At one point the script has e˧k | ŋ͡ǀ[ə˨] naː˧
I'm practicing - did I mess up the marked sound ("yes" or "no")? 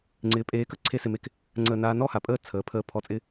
yes